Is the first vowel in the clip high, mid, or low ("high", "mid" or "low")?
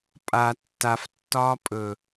low